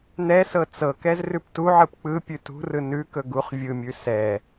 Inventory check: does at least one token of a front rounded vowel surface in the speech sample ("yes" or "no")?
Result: no